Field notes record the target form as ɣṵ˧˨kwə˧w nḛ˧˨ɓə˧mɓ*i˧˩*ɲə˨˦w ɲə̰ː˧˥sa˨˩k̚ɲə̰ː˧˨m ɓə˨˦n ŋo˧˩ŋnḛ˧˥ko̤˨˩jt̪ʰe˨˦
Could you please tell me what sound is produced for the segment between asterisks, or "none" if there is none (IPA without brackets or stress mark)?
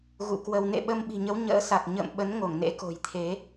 i̤˨˩